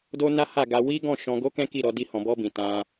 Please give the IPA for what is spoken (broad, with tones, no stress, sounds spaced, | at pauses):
d o˦ n a˦ h a˦˨ ɡ a˧ w i˦ ɡ ɔ̃˦˨ ʃ ɔ̃˧ ɡ o˦ k ɛ̃˦ k i˦˨ ɾ ɔ˨˦ d i˦ h ɔ̃˧ b ɔ˦ b ĩ˧ t ã˦